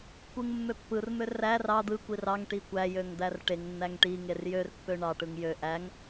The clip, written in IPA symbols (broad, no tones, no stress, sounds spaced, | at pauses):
kʷ ɯ ŋ mː ø pː ɯ r m ø r æ r ɑ d̪ ɯ kʷ i r ɑ ŋ ʈ i kʷ æ j ø ŋ d̪ æ r ʈ e ŋ nː æ ŋ ʈ i ŋ e r j ø r pː ø ɳ ɑ ʈ ɯ ŋ j ø ʔ æ ŋ